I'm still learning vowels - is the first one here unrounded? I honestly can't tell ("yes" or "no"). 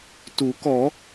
no